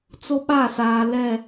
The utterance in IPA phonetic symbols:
t͡s o˦ ɓ a˦˨ s aː˨ l ɛ˦˨

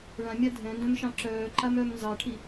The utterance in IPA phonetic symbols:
ɭ ã mʲ a dʱ ɛ̃ n d œ̃ m ʃ ɑ̃ ǁ œː ǃ a m œ m n z ɑ ʈʰ i

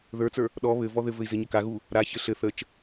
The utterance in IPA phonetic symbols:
ð ə˞ t͡s ə˞ | ɗ ɔ β ɘ v ɔ ð ɘ v ɘ i̯ z ɘ ɲ ə k a ɣ u | ɾ a ç ɘ ɬ ɘ θ ə t͡ʃ

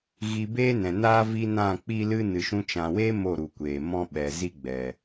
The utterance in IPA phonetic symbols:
ɣ i˧ b eː˦ n ɛ̃˨ n aː˦ v i˦ n ã˦˨ k͡p i˦ l ɨ˦ n ɨ˨ ʃ ũ˧ t͡ʃ ã˨ w eː˦ m o˦˨ ɾ u˨ kʷ eː˨ m ɔ̃˦ ɓ ɛ˨ z i˦ ɡ͡b ɛ˨

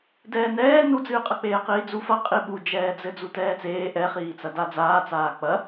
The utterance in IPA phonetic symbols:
d ɛː n ɛː n u d͡z ɨː qʼ ɐ k͡p eː q iː d͡z u f ɐ qʼ i ɓ u d͡ʒ ɛː d͡z ɘ d͡z u t ɛː t͡s eː ʔ ɛ χ iː t͡s ɐ d a d͡z aː t͡s aː k͡p ɐ

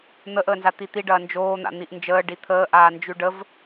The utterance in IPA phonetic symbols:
n̪ ə ʔ əː n z a t̪ i t̪ i ɖ ɐː n d͡ʒ oː n̪ a̰ n̪ i ʔ n d͡ʒ əː ɖ i t̪ʰ əː ʔ aː n d͡ʒ ʉ ɖ ə v

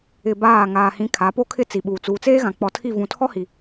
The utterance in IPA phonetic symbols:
ɪ˨ b aː˦˨ ŋ aː˨ h ĩ˨˦ kʰ a˨˦ p o˦ kʰ ɪ˦ t͡s i˨ ɓ uː˨ t͡s uː˨ t͡s eː˦ ɣ ã˨ k͡p ɔ˨ tʰ i˦˨ v ũ˨ tʰ ɔ˦ h i˨

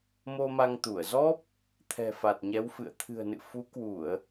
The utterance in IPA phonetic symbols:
m o˧ m a˧ ŋ t̪ u˧˩ ə̯ z ɔ˦˥ p̚ | t̪ʰ ɛ̤˨˩ f a˨˩ t̚ ɲ ɛ˨˦ w f ɨ̰˧˨ ə̯ t̪ʰ ɨ̤˨˩ ə̯ n ɨ̰˧˨ f u˨˦ k w u˧˩˨ ə̯

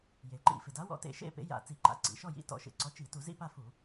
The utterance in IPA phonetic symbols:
j e˩ ǃ ḭ˧˩˧ f ɪ˩ d a˨˥ w ɔ̰˨˥ t ḛ˧˩˧ ʃ ḛ˥˨ p ḛ˨˥ j a̰˧˩˧ t͡s i˧˩˧ ǃ a̰˩ ǀ ḭ˩ ʃ ɔ˥˨ j ḭ˨˥ t ɔ̰˧˩˧ ʃ ḛ˩ ǀ ɔ˨˥ t͡ʃ i˧˩˧ t u˧˩˧ z ḭ˥˨ p a˥˨ f u˧˩˧

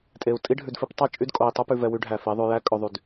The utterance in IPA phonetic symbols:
tʼ e˨ u̯ tʼ i˦ ɖʱ ʉ˨ d f i˦ p tˤ ɑ˦ t͡ʃʼ y˦ d kʼ o˨ i̯ tˤ o˦ p ʉ˨ v ɛ˨ w y˨˦ ɖʱ æ˨ f i˨˦ ðˤ ʉ˨ j æ˦ kʼ ɵ˨ ðˤ y˨ d

